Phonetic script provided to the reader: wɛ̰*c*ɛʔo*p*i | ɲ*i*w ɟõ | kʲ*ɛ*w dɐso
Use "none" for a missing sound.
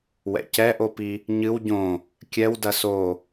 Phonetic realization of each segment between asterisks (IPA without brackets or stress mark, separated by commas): c, p, ɨ, ɛ